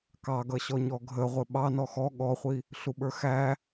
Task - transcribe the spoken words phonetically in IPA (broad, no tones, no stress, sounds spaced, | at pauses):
k ɑ ɡ ʌ ɕ ɔ ɲ ɔ ɡʱ ə ʁʷ ɪ ɓ ɑ n ɔ x ɔ ɠ ɔ χʷ i | ɬ u ɓ ə˞ x æ